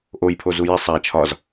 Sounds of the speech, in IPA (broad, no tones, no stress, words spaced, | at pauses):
ʔojpʰozu jisˤ æ t͡ʃʰɒz